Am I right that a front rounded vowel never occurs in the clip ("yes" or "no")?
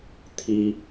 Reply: yes